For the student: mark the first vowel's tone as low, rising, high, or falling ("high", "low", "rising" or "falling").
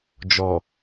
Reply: low